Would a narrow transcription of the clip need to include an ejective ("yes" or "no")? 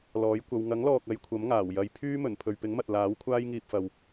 no